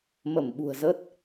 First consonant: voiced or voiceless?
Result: voiced